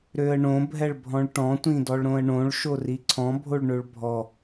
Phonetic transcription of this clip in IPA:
ɾøə̯ɳõ bʱɛɭbʱɔ̃ɭʈɔ̃ tʷĩdɔɭɾõə̯ɳõɭ ʃoriǀʰɔ̃ bʱoɭɳøɭbʱɔ

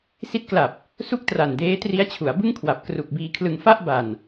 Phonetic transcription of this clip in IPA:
si˦˥t̚kla˨˩p̚ | su˥˩k̚tra˨˩n deː˦˥tri˦˥a̯ t͡ɕʰu˩˦a̯bɯ˥˩ŋkʰwa˨˩p̚ kru˨˩k̚biː˧kʰlɯ˧ŋ fa˥˩ʔba˨˩n

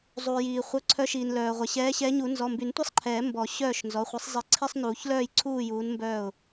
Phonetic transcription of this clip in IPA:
zˤuː˩jiː˩χʷœ˩˧˩ ǀʰœ˨˦ʃiː˩n lœː˩ʁʷɛ˩ ɕɛː˨˦ɕɛ˨˦ ɲu˨˩˦ nzɔ˩˧˩mby˨˩˦ntʷi˥˨sˤǃʰɛː˨˩˦ mbɔ˨˩˦ ɕœː˥˨ʃnzɔ˩˧˩ χʷi˨˩˦sˤzˤi˨˦ǀʰi˧˥˧sˤnuː˨˩˦ç lœː˥˨jǀʰuː˥˨juː˨˦n mbœː˥˨ʊ̯

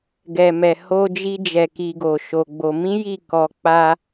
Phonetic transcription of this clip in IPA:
ɡɛ˨mɛ˨ ho˧d͡ʒi˧d͡ʒɛ˨ ki˧ɡo˨ʃo˧ɡ͡bo˧ mĩ˦ji˦˨ kɔ˧k͡pa˦

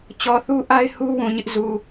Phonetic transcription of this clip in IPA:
t͡ɕɔ˨θu˦ʔa˦ɪ̯ hu˦ wũ˨ɲɪ˦ʔzu˨

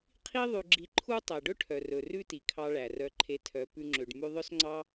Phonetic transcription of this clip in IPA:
qʰi˦ ðˤʉ˧ɡ͡ǁi˧ ǃʰu˦ tˤæ˨ɖɵ˦ʈʰœ˨rɵ˨ rʉ˦ti˨kʰɑ˧ ɭæ˨rœ˧ǃʰe˧tʰœ˨˦ pʉ˧ŋ͡ǁø˨ɖ mʉ˧ðˤœ˦sŋ͡ǀɑ˦

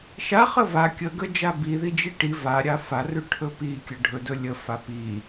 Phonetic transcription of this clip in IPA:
ʃa χəva kʲəɡə d͡ʒabiði d͡ʒiʈi vaɾʲa farʉ ʈʰɵpikʲə ɖʱɵdɵ lʲə fapi

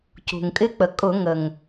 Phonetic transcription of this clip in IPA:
cṳ˩ŋkʼɪ˧˥k͡pə˩ kʼʊ˧˩˧ŋə˩ŋ

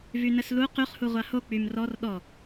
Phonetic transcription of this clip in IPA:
vynəslu qyχ huʁʷaho k͡pymrɔr ɗɔ

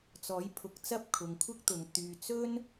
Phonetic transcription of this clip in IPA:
t͡sɔː˨˥jpʰʊ˨˥k̚t͡sɐ˥p̚kʰʊ˨˧ŋ kʷʰɪ˥k̚t̪ʊ˨ŋ t̪yː˨t͡sɵ˥n

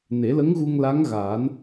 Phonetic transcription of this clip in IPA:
ne˨˩˦lə˧˥ŋɣu˧ŋla˧˥ŋ ɣaː˨˩˦n

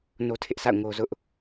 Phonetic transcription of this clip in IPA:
no˦tʰɪ˦ʔsa̰˦˨ʊ̯ ŋo˦zʊ˦ʔ

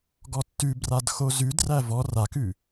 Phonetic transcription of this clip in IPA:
ɡɔtːʉbrad xozʉdræ vɔ rakʉ

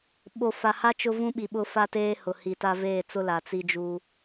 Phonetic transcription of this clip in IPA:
ɓo˨fa˨ha˦ t͡ʃʊ˦vũ˦ɓi˨ ɓʊ˦ fa˦ teː˦ hʊ˨hi˨ta˦ veː˦˨t͡sʊ˦ la˨t͡si˦d͡ʒu˦

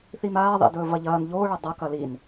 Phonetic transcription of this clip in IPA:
θimaː ðˤḭdɵːvɐʎɐːn ʎo ɭɐdˤɐ kɐlin

